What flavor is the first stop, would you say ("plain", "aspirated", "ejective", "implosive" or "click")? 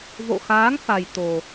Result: plain